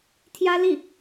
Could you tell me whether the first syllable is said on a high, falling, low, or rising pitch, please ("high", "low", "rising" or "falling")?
high